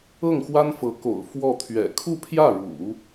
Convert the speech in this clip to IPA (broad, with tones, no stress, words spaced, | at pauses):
ɤ˥˩ŋxwa˥nfɤ˧˥ko̰˨˩ʊ̯ fwɔ˥˩t̪ʰɥɛ̰˨˩ kʰu˥˧pʰjä˥˩ɻṵ˨˩˦